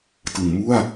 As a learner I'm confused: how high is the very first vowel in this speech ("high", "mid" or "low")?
high